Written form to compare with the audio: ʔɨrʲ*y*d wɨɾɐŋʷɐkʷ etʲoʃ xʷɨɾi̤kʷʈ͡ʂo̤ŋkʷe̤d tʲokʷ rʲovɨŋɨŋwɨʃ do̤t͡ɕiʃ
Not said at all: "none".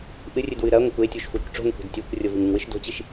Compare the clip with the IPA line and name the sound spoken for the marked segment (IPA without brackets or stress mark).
ɨ